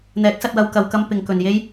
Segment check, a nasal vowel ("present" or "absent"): absent